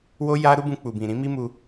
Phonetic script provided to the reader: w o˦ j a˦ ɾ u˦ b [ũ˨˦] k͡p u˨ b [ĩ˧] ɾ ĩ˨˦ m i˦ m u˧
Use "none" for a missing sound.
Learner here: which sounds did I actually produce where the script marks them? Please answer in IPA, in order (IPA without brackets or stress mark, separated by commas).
ũ˧, ĩ˨